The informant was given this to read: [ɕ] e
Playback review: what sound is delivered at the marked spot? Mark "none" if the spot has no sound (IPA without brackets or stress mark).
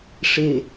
ʂ